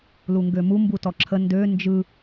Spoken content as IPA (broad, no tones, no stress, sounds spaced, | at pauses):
l u ŋ ɡ ø m u m b u t ɔ ǁʰ ə n d ø n d͡ʒ ɯ